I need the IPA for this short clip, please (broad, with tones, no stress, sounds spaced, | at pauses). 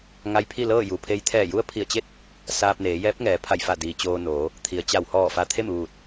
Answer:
ŋ a˧ j pʰ i˥˨ l ɤː˥˨ j u˩ pʰ e˧˥ j t̪ʰ ɛː˧˩ j u˧˥ ə̯ pʰ i˧˩ ə̯ t͡ɕ e˥˨ t̚ | s aː˧ p̚ n eː˩˧ j ɛː˧˥ p̚ ŋ ɛː˩˧ pʰ a˧˩ j f a˧˩ d iː˩ t͡ɕ oː˧ n oː˩˧ | t̪ʰ i˩ ə̯ t͡ɕ a˧˩ w h ɔː˧˩ f a˧ t̪ʰ e˥˨ m ʋ uː˧˩ t̚